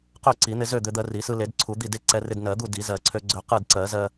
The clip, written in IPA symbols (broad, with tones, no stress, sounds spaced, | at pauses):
q ø˥˨ ǀ i˨˩˦ n̪ ɪ˧ z ø˥˨ d̪ ø˧ d̪ ɜ˧ r i˨˩˦ s ɯ˧ l e˨˩˦ d ǀʰ u˨˩˦ d̪ i˥˨ d e˥˨ ǀ ɛ˧ r ɪ˧ d n ɜ˨˩˦ d̪ u˥˨ d i˨˩˦ z ɜ˨˩˦ ǀʰ ø˧ ɡ͡ǀ ø˧ q ɯ˥˨ d ǀ ɜ˨˩˦ z ɜ˧